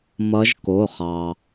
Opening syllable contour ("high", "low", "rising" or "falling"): rising